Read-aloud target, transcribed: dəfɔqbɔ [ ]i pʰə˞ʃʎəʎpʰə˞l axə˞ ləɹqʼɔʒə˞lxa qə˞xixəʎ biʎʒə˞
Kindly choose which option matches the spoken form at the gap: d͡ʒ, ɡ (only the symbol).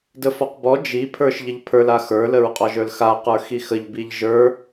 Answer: d͡ʒ